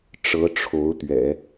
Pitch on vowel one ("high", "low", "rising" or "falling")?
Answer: rising